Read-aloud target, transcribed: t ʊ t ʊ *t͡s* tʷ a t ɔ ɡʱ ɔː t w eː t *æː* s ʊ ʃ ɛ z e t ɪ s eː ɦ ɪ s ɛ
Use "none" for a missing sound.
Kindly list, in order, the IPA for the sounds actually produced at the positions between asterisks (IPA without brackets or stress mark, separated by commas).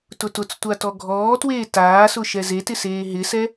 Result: t͡s, aː